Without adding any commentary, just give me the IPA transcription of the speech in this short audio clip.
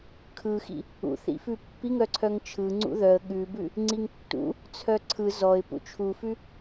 kʰ ɯ x ḭ | ṵ θ ḭ f ʉ pː i ŋ œ ǀʰ œ ŋ t͡ʃʰ ɯ ŋ͡ǀ ṵ ð œ ə̯ ɠ ʉ b ʉ | ŋ͡ǀ i ŋ tː ṵ | t͡sʰ œ ǀʰ ɯ z ɔ ɪ̯ p ṵ t͡ʃʰ u f ʉ

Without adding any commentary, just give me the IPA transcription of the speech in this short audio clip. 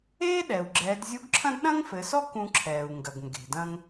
eː˥ ɗ ɛ˩ u̯ ɡ͡ǁ ɛː˩˧ d zʲ u˧˥ ɡ ǁʰ ɐ̃˥ d ɗ ɐ̃˥ ŋ f ɘ˩˧ s ɔ˥ k ũ˧ ǁʰ ɛː˩ u̯ ŋ ɡ ɐ˩ ɡ ŋ ɡ e̤˩ d ɐ̃˧ ŋ

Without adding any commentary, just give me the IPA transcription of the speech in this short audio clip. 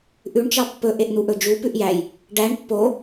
ʔ ʉ ɳ t͡ʃ ɑ pː ɵ ʔ e ʔ n̪ u ʔ ɵ d͡ʒ u p ʉ ʔ j æ j | ɖ æ ɳ pː o

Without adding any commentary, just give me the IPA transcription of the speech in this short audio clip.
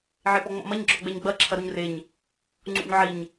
ʕ e p ɔ ŋ͡m ɔ̰ m ɐ ɲ ɡ͡ǁ ɔ ɡ͡b ɛ ɲ ɡ͡b ɐ ǁʰ ɐ ɾ u ɲ r e ɲ | ŋ͡ǀ ṵ ɲ ʕ i ɲ

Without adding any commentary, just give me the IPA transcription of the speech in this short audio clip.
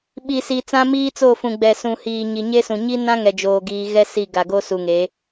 ɓ i˨ s i˨ t͡s ã˦ m iː˦ t͡s o˦˨ f ũ˨ ɡ͡b ɛ˨ s ũ˨ h iː˨ ɲ i˨ ɲ e˦ s ũ˨ ɲ i˦ n ã˦ ŋ ɛ˨ d͡ʒ oː˨ ɡ iː˨ ɣ ɛ˦ s i˦˨ ɡ a˨ ɡ o˦ s u˨ ŋ e˨˦

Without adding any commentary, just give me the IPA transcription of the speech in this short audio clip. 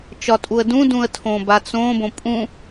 t͡ʃ ɒ tʼ u ə̯ d ũ d ũ ə̯ tʰ õ b a t͡s õ b õ pʼ ũ

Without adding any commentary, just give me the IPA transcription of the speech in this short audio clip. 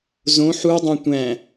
z õ ħ u dˤ õ tʷ æ̃

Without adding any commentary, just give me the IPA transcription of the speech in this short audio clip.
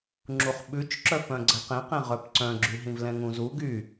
ŋ͡ǁ u χ ɓ ʉ t͡ʃ ǁ œ p œ̃ ɡ͡ǀ ɛ q ẽ q ẽ ʁ œ p ǀ œ̃ ɡ͡ǁ y ɦ ĩ v l ɛ̃ ŋ ũ z u ɡ y

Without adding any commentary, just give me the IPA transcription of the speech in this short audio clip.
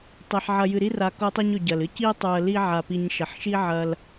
tˤ i˩ ħ ʕ ɐ˨ j ɨ˨ ɾ i˥ r a˨ k o˦ tˤ ɨ˦ ɲ ɵ˨ ɟ ɐ˩ l ɨ˥ c i˥ tˤ u˨ ə̯ l i˦ ʕ a˨ p i˨ ɲ ʃ ɐ˨ ħ ʃ i˥ ʕ ɐ˦ l

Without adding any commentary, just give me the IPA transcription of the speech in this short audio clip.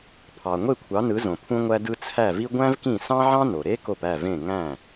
pʰ ɑ˩ ŋʷ e˥˩ kʷʰ ɑ˩˥ n ɯ˩˥ z õ˩ pʰ ũ˧ ŋʷ æ˧ d ɯ˧ t͡sʰ æ˥˩ v i˥ ɡʷ æ̃˥ v k ĩ˥˩ s ɑ̃˥ ʕ ɑ̃˥ n o˩ ɾ e˥ k o˥˩ p æ˥˩ v ẽ˥˩ ŋ æ̃˥˩

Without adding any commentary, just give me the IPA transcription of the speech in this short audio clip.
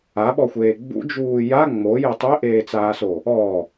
a ɓ ɔ xʷ eː ɡ͡b ṵ d͡ʒ uː j a ŋ͡m o j e tˤ e ʔ eː t͡s aː s o | ɔ

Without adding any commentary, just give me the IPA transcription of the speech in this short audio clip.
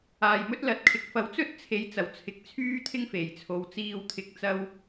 aː˨˩ j m ɵ˥ t̚ l ɐ˨ t̚ kʰ ɪ˨˥ k̚ f ɐ˨ w t͡s ɵ˥ t̚ t͡sʰ e˨˧ j t͡s ɐ˨˩ w t͡sʰ ɪ˨˥ k̚ t͡sʰ yː˥ t̪ʰ ɪ˥ ŋ f e˨˩ j t͡sʰ o˨˧ w t͡s iː˧ w t̪ʰ ɪ˨˥ k̚ t͡s ɐ˧ w

